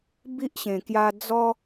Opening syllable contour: high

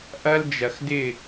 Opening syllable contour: high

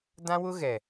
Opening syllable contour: high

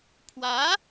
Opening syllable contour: rising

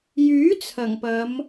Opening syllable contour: rising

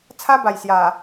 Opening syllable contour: high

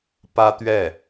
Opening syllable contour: high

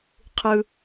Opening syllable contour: high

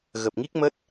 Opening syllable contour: low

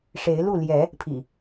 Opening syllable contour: rising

